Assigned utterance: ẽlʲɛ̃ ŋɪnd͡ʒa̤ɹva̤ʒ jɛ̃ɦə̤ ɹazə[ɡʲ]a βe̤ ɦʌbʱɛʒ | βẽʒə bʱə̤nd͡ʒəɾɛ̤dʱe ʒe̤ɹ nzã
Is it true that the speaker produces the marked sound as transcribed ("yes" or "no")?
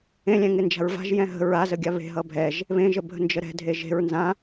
yes